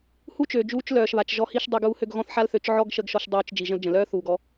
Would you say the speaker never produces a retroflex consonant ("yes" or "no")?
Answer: yes